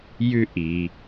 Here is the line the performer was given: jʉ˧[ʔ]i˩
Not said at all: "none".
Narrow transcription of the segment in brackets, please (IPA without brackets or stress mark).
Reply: ʔ